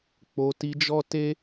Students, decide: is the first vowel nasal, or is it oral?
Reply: oral